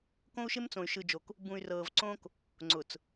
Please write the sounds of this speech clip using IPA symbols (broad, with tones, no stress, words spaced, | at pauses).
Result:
kõ˦u̯ʃɪ˦mt͡sõ˨y̯ ʃɯ˨d͡ʒo˨k | bũ˨y̯ rɤː˨vǀõ˦k | ŋ͡ǀʊ˨t͡s